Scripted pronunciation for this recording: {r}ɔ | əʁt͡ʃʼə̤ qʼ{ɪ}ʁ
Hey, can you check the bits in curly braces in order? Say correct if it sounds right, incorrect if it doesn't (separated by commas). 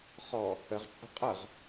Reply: incorrect, incorrect